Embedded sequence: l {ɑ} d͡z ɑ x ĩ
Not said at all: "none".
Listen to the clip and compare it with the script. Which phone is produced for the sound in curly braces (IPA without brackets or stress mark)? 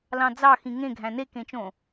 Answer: ɑ̃